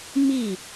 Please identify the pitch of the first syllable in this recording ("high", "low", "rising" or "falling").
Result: falling